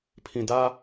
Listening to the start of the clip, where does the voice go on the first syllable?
low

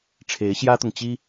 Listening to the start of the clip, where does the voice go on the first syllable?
rising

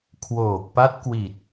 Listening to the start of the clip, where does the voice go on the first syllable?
low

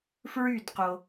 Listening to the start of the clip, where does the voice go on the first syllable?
falling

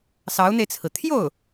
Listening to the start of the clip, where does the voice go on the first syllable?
rising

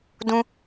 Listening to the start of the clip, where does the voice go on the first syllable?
high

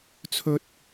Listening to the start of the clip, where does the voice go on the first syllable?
high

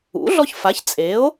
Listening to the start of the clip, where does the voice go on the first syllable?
rising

